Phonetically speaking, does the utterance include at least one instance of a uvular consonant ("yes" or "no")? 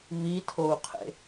yes